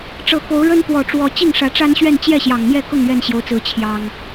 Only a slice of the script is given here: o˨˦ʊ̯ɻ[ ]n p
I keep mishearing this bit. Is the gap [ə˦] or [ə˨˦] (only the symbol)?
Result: ə˦